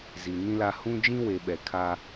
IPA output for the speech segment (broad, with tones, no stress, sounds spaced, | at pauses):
z i˨ n ĩ˦ l a˦ h ũ˦ d͡ʒ ĩ˦ w e˨ ɓ ɛ˨ kʰ a˦